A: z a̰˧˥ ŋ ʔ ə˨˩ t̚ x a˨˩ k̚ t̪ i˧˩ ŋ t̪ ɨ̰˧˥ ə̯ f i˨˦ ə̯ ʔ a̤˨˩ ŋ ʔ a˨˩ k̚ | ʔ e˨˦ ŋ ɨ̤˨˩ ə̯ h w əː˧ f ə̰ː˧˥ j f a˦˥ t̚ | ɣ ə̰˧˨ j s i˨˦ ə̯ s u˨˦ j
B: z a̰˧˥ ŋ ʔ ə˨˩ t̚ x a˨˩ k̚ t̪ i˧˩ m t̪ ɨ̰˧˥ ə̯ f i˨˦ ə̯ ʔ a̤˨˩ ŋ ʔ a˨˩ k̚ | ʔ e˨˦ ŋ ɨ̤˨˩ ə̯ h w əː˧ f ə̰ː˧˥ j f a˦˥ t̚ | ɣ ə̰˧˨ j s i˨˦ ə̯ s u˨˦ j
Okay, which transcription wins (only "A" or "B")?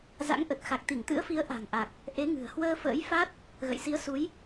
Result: A